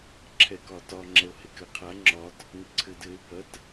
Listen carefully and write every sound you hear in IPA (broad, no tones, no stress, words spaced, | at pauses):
ǁʰɛkɒtɒ ŋ͡ǁɛo̯hekɘ qʰa ŋ͡ǁɒt | ŋɘǀʰɘ dɘe̯ bɐt